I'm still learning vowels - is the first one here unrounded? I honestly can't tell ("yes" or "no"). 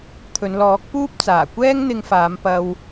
no